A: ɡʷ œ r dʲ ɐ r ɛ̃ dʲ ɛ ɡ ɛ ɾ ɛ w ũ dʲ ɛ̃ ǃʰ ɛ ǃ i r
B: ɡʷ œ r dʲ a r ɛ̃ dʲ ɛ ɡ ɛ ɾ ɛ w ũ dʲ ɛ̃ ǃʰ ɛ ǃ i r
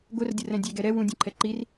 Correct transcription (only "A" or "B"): A